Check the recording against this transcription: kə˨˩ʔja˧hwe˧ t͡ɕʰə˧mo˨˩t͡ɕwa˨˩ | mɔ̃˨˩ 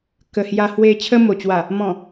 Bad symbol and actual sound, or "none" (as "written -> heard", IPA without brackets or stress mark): ʔ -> h